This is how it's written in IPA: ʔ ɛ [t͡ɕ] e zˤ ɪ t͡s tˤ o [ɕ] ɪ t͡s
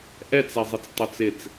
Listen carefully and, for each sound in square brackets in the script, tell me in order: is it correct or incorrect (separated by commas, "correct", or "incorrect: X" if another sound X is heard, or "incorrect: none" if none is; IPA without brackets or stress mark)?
incorrect: t͡s, incorrect: t͡s